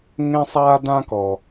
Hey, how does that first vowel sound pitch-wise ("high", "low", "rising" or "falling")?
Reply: high